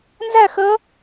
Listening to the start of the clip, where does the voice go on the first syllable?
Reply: falling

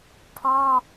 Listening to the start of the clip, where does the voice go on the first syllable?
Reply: high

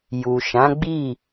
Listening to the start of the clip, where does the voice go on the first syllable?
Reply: low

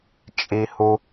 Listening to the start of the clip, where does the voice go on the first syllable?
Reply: high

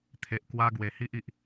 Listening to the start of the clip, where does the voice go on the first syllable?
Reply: low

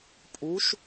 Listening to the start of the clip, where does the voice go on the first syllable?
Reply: rising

